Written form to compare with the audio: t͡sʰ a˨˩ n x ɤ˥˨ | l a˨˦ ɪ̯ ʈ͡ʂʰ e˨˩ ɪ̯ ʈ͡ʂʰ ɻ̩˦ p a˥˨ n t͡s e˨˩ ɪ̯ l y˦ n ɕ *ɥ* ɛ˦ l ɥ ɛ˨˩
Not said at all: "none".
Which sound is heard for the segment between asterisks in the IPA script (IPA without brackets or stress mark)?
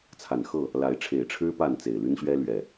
ɥ